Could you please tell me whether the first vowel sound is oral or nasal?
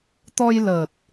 oral